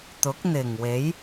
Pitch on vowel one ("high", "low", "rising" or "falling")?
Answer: rising